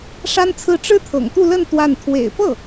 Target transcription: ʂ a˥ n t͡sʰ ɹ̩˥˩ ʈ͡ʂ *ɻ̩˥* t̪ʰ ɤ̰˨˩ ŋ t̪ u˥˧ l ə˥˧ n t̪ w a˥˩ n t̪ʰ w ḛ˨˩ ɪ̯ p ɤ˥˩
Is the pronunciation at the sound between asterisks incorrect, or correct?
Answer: correct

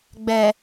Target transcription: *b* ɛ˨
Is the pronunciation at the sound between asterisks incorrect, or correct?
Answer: incorrect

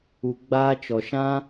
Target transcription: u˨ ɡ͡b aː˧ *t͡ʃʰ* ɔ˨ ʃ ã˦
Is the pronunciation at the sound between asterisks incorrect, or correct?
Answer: incorrect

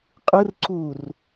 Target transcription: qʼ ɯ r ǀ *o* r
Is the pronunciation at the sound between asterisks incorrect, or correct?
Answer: incorrect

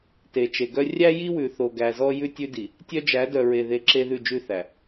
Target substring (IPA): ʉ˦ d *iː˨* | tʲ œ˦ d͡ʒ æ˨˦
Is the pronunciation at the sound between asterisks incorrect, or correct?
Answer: incorrect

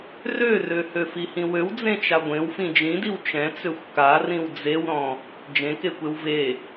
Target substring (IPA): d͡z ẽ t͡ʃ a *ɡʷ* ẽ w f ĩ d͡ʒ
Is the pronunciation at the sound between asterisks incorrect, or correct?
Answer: correct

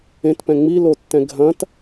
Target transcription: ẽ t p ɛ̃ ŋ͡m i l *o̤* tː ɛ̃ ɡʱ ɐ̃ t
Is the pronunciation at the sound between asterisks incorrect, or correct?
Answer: incorrect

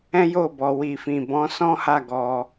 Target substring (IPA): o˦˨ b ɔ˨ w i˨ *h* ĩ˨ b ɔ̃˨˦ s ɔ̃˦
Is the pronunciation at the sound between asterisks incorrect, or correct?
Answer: incorrect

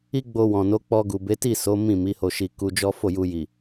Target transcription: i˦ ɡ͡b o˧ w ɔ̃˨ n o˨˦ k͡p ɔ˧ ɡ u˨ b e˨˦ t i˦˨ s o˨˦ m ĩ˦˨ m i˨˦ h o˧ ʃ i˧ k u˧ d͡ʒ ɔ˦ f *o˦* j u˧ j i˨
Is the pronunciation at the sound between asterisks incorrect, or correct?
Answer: incorrect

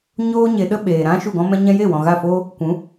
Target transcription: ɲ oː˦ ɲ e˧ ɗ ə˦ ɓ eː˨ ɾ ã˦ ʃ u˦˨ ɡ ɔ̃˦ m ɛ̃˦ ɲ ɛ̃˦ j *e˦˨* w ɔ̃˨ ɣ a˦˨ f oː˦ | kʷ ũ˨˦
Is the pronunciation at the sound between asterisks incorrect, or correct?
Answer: correct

